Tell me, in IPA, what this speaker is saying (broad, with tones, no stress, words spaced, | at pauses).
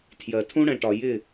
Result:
tʰjɜ˨tʰũ˦ɽɛ̃˨ʈɒ˨ jɪ˦˨